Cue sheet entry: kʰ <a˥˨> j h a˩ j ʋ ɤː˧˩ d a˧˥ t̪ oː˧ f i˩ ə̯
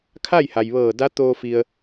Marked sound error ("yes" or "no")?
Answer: no